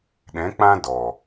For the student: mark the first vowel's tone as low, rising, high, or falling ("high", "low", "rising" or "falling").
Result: rising